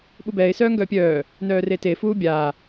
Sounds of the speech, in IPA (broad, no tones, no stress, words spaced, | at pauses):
ɓubɛːɪ̯ sœːŋɡœːpʲœː | nœːrete fuːbʲaː